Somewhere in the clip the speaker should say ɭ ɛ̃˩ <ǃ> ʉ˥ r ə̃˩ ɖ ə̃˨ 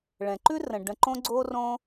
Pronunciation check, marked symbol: correct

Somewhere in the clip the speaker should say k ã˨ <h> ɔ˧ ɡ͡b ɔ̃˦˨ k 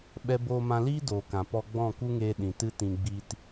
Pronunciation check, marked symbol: incorrect: p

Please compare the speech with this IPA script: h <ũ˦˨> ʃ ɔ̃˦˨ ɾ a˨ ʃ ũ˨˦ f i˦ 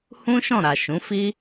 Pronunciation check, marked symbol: incorrect: ũ˦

